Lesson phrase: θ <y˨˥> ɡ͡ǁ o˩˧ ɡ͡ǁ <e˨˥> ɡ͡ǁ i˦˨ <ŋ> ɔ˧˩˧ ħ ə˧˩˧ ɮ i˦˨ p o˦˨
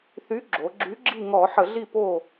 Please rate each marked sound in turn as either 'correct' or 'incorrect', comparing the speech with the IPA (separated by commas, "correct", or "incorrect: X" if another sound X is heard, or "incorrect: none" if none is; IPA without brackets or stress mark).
correct, incorrect: y˨˥, correct